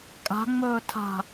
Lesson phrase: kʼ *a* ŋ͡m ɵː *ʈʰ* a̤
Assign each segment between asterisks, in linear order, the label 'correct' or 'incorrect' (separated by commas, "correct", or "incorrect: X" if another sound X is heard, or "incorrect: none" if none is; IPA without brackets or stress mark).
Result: incorrect: a̤, incorrect: tʰ